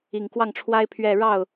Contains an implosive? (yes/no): no